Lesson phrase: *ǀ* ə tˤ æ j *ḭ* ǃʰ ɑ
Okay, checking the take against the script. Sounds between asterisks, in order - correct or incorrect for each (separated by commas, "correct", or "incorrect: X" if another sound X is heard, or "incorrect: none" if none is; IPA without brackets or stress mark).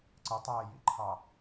correct, correct